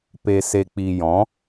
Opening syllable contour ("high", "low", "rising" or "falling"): low